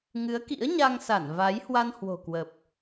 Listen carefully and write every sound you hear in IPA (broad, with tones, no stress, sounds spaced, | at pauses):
ŋ ɨ˨˦ ə̯ k ḭ˧˥ ə̯ ɲ a˧ ŋ s a˧˩ n v a˨˦ j h w a˧ n h w o̤˨˩ k w ə˨˩ p̚